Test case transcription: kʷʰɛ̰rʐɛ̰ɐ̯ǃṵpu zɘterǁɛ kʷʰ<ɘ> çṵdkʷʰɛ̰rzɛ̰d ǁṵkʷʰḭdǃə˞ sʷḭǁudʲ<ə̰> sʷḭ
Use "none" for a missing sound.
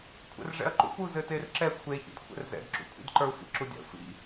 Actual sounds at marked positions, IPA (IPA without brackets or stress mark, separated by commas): e, a̰